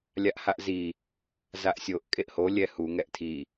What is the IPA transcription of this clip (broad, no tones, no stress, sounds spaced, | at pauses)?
lʲ a ʔ h a ʔ z i | z a ʔ sʲ o ʔ kʼ e ʔ h o lʲ ɛ h u ŋ ɛ ʔ tʰ i